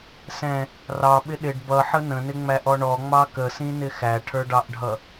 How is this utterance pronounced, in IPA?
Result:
sɛ̃ | rɑɓɪ ɗɪɖ bʌħə nə̃nɪŋ͡mæʔɔ ɳɔŋ͡mɑ kəsĩnɪ xæʈʰə˞ɖɑʔɖʱʌ

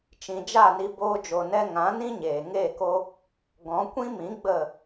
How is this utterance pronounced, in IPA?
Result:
t͡ʃĩ˨d͡ʒa˦˨ni˧ boː˧d͡ʒo˨nɛ˧ ŋã˨˦nĩ˦ɲeː˨ ŋeː˦˨ko˦ | ɡɔ̃˨˦kʷĩ˦mĩ˨˦ ɡ͡bə˦˨

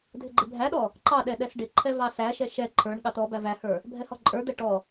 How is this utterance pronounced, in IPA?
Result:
dʱɪɡ͡ǃɪbʱæɗɔ | ǃɑ ɗɛɗɛsɖɪǃʰɛ vɑsæʃɛ ʃɛ ǃʰə˞ɳɠɑt ɔ bævæhə˞ | bʱɛhɔǃʼə˞d̪ɛ ʈɔ

